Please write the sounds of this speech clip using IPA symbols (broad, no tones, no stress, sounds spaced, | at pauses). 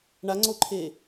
ɳ a ŋ͡ǀ o ǃʰ eː